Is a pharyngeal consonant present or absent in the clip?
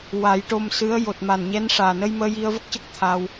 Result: absent